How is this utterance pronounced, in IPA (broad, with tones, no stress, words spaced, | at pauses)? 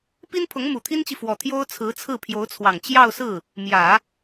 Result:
pi˥npʰʊ˧˥ŋ mu˨˩t̪ʰi˥nt͡ɕi˨ fwɔ˨˩t̪ʰjo˥ʊ̯ t͡sʰɹ̩˧˥t͡sʰɹ̩˥˩pʰjo˧˥ʊ̯t͡sʰwɑ˨˩ŋ t͡ɕjɑ˥˧ʊ̯sɹ̩˥˩ | mjä˨˩˦